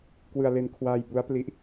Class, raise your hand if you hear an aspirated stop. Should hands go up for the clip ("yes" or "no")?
yes